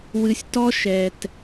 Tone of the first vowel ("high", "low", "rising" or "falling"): low